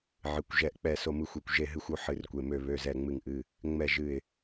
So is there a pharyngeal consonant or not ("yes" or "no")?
yes